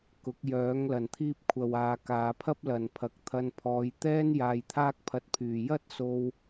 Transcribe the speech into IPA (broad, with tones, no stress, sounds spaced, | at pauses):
k ʊ˨˥ k̚ j œː˨˥ ŋ l ɐ˨ n t̪ʰ iː˥ p̚ kʷʰ ɐ˨ w aː˨ k aː˨˧ pʰ ɐ˥ p̚ l ɐ˨ n pʰ ɐ˨˥ k̚ t̪ʰ ɐ˧ n pʰ ɔː˨˧ j t̪ ɛː˥ n j aː˧ j t̪ʰ aː˥ k̚ pʰ ɐ˧ t̚ pʰ yː˨ j ɐ˥ t̚ s o˧ w